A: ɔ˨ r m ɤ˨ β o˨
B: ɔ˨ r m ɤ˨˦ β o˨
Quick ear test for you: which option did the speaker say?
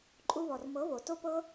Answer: B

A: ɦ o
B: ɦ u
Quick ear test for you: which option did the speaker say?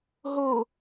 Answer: A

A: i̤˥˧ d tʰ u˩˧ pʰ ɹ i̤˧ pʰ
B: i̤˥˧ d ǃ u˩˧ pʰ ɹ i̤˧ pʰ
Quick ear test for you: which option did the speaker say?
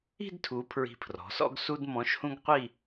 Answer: A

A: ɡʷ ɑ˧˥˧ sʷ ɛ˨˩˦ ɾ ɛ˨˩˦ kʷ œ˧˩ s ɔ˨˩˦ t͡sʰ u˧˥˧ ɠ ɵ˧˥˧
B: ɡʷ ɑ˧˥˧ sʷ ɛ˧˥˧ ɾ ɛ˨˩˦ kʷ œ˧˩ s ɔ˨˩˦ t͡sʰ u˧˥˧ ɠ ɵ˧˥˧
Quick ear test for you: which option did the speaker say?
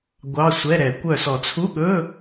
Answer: B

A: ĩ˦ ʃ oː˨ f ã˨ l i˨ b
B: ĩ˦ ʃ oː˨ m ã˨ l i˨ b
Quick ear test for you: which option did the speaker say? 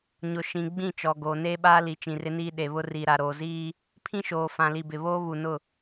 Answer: A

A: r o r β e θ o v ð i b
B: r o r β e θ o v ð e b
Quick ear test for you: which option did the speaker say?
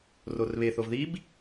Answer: A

